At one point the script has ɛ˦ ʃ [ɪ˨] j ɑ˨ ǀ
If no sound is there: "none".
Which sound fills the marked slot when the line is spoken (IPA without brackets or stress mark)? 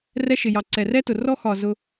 ɪ˨